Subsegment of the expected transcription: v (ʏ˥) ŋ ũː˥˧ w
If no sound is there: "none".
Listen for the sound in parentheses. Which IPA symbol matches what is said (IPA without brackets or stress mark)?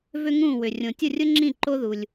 ʏ˥